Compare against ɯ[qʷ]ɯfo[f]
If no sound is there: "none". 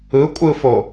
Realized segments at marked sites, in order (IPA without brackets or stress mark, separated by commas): kʷʼ, none